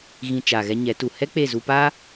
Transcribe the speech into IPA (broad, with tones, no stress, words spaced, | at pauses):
ɣĩ˨ t͡ʃa˨ɣɛ˧ɲɛ˨˦ tu˨ hɛ˦k͡pe˦˨zu˧pa˦